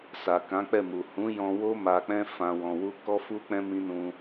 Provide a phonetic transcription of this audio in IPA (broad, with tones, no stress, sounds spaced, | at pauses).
s a˨ k ã˨˦ k͡p ɛ˦˨ m u˨ h ũ˨˦ j ɔ̃˧ w o˦ m a˧ k͡p ɛ̃˦ f ã˧ w ɔ̃˧ w u˦ k ɔ˦ f u˦ k͡p ɛ̃˦ m ĩ˦ n ũ˧